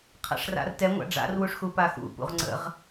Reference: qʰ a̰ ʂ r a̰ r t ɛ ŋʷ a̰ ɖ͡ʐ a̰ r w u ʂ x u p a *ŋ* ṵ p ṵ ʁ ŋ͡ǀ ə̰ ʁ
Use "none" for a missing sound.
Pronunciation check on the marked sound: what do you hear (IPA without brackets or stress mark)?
x